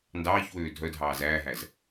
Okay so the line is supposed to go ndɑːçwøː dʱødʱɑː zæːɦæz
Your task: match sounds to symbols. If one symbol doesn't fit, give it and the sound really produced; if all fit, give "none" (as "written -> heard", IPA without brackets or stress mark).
ø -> œ